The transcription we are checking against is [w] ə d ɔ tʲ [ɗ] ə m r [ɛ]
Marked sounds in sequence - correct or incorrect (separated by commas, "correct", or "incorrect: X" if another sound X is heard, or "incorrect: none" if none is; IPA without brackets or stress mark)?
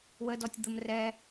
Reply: correct, incorrect: d̪, correct